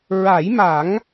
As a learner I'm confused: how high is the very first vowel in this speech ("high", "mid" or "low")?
low